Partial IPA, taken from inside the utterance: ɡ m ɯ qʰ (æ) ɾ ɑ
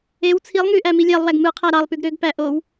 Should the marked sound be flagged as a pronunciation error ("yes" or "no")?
no